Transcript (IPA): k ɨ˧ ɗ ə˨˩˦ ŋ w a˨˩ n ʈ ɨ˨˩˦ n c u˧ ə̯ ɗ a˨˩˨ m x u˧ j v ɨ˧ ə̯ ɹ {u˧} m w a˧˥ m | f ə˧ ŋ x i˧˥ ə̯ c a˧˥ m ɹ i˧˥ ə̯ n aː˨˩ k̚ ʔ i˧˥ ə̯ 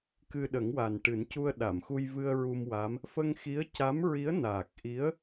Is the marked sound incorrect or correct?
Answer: correct